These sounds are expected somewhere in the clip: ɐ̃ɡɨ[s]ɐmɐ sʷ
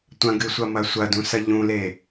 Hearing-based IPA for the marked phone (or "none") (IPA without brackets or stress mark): sʷ